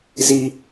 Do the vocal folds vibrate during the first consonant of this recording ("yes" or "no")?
yes